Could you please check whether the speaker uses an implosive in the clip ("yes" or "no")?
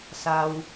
no